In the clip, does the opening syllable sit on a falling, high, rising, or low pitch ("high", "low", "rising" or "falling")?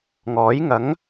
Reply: rising